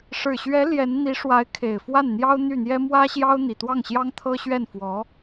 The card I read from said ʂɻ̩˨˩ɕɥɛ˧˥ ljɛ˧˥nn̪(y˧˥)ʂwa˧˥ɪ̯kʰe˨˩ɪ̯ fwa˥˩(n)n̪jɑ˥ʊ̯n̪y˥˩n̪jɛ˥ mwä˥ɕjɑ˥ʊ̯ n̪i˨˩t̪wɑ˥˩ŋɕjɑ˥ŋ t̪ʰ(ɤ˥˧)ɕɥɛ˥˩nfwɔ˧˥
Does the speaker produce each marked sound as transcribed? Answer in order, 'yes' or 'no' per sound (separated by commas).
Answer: no, yes, no